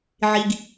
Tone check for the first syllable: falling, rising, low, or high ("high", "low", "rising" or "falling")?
low